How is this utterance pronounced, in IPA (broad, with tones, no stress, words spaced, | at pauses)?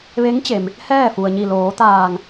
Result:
ʋe˧˥ŋt͡ɕe˩m | hɛː˥˨fu˩ə̯ɲi˧˩ loː˩˧t̪aː˧˩ŋ